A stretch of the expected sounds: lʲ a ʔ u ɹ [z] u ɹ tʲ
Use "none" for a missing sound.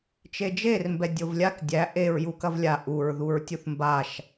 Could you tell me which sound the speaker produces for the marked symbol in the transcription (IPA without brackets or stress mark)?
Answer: ð